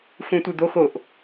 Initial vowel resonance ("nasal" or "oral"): nasal